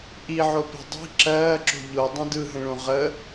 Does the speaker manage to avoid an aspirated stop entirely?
yes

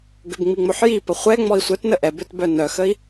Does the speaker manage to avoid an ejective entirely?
yes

